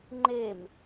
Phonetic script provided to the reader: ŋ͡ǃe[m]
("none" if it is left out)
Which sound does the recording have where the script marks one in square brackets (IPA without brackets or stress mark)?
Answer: m